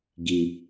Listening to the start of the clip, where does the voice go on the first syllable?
low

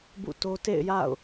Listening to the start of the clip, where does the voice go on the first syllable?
falling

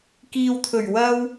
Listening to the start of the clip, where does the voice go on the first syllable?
low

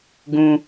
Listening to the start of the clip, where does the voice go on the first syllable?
high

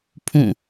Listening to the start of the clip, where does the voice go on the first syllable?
falling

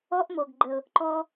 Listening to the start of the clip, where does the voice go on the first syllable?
high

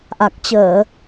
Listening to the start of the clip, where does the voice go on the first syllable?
low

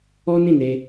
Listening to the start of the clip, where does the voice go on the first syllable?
high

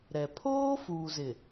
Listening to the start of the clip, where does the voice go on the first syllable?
low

